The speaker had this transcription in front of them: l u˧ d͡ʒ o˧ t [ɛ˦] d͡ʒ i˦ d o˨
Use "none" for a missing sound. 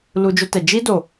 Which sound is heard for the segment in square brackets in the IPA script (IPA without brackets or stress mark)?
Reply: ɛ˨